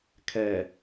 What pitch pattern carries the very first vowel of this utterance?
low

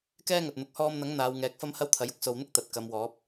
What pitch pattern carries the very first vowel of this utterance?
high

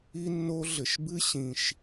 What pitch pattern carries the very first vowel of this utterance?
high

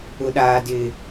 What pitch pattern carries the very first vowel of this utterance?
high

